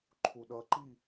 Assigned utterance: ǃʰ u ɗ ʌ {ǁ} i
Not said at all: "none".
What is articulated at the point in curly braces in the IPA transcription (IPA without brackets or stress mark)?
ǃ